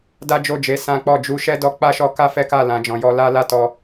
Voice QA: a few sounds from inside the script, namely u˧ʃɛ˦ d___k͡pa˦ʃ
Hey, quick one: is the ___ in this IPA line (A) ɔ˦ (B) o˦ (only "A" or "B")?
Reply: A